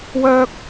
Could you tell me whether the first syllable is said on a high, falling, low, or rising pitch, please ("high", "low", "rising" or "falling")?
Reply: high